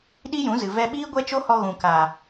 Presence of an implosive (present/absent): present